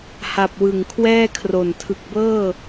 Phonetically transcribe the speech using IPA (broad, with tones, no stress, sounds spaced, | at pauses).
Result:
h a˨˩ p̚ w ɯ˨˩ ŋ kʰ w ɛː˥˩ kʰ r o˨˩ n tʰ ɯ˨˩ k̚ b ɤː˥˩